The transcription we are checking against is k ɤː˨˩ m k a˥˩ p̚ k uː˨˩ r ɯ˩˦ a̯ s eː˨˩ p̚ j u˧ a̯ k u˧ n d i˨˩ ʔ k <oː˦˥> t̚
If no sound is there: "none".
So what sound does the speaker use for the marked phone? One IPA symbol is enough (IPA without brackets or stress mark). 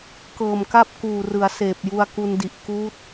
uː˦˥